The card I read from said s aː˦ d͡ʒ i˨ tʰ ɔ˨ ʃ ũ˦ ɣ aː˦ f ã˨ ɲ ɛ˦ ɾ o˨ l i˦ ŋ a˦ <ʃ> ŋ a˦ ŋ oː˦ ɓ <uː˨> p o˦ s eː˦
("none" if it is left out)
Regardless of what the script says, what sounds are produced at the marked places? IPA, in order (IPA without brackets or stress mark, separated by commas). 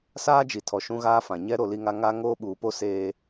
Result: none, uː˨